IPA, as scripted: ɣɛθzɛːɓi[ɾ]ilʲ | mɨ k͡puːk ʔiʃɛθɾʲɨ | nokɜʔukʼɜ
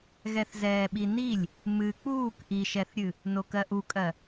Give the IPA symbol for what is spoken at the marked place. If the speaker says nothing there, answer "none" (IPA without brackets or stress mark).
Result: n